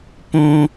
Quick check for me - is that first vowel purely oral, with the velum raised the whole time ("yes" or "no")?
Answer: no